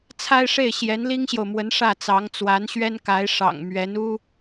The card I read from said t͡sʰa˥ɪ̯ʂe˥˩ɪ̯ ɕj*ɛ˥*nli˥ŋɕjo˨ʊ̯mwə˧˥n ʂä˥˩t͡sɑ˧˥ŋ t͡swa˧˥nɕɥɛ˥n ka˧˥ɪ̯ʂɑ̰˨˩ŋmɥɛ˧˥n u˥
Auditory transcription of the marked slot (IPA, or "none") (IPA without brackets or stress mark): ɛ˧˥